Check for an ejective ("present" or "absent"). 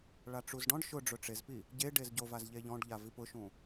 absent